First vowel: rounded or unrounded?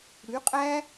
rounded